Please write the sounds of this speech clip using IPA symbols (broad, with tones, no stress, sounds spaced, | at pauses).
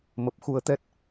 m ə˨˩ p̚ x u˧ ə̯ t̪ ɛ˦˥ t̚